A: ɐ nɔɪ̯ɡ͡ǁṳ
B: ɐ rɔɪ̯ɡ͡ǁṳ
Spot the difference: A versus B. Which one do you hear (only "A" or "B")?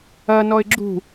A